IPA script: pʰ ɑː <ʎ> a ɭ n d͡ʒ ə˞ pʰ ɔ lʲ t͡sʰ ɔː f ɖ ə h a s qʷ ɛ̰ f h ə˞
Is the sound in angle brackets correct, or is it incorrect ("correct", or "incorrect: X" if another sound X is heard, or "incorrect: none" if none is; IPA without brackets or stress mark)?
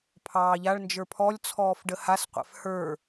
correct